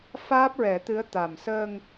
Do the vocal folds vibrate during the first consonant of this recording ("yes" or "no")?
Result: no